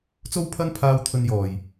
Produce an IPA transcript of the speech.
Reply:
t͡s o˥ w pʰ ɐ˥ n pʰ aː˧ w t̪ʰ ɵ˧ n j ɔː˨˩ j

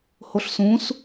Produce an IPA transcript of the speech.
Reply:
h o ɬ s ũ s

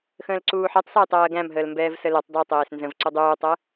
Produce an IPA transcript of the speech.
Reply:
x ə̃ː l ǀ uː ħ ɛ tˤ s æ j tˤ ɜː ɡ æ̃ m ɦ əː l m b ɛː v s ə l e tˤ dˤ e tˤ eː s n z ə̃ v ǀ u dˤ uː tˤ ɜ

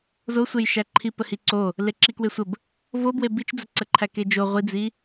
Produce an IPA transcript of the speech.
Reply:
z o sʷ e j ʃ æ ǃʰ i p ə h i ǀ o | l e ǁ i k w e sʷ ə b | v o b w e b i t͡ʃ d͡z ə ǀ ə ǃʰ æ k e d͡ʒ o ʁʷ i d͡z i

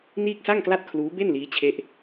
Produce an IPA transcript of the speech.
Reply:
n iː˥˩ k̚ s a˥˩ ŋ k l a˥˩ t̚ kʰ l uː˦˥ b e˥˩ n l iː˦˥ t͡ɕʰ e˦˥ ʔ

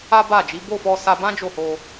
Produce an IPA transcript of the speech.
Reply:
a˦ b a˦˨ d͡ʒ i˨˦ b o˦˨ f ɔ˧ s a˧ b ã˦ d͡ʒ o˦˨ h o˧

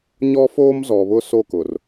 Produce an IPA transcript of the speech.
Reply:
ɲ ɔ˦ f oː˦ m z ɔ˨ β ʊ˦ s o˦˨ k ʊ˨ r

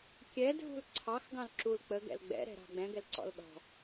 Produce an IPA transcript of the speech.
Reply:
kʲ ɛ dʱ ṳ l ǀʰ ɑ x ɡ ɑ̃ l ǁ u l k͡p ə ɡ ɛ̰ l ɡ͡b ɛ̰ ɾ ɛ̤ ɾ ɑ̤ ɡ͡b ɛ̃ ɡ ɛ l ǀ ɔ̰ l ɗ ɔ̤

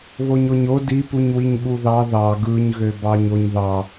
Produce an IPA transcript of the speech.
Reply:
β o ɲ o ɲ o d i p u ɲ w i ɲ ɓ u ð ɑ ð ɑ ɡ ɯ ɲ ɣ ø b ɑ ɲ o ɲ ð ɑ

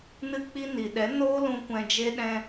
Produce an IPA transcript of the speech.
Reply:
n ɨ˧ k͡p i˧ n i˨ ɗ ɛ˨˦ n oː˦ l ũ˧ kʷ ɛ̃˧ d͡ʒ e˦ ɗ ɛ̃˧

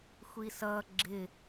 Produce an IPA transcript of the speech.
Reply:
xʷ i s ʌ ɡ͡ǁ ɪ

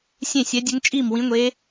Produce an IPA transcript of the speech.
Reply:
sʲ ẽ˥˧ sʲ ɛ˦˥ dʲ ɘ˦˥ ŋ t͡ʃʼ i˥˧ m w ĩ˦˥ ŋʷ e˦˥

